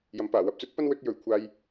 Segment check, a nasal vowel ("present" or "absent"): absent